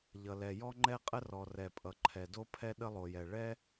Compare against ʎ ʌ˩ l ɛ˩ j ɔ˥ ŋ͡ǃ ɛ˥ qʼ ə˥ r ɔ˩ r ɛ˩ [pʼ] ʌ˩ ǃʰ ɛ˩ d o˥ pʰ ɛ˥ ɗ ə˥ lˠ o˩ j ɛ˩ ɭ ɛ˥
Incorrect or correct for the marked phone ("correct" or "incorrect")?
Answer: correct